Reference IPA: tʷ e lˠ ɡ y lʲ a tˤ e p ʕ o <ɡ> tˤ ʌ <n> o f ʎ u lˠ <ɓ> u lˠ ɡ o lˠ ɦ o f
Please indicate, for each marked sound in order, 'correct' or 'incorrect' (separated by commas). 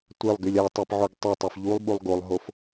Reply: correct, incorrect, correct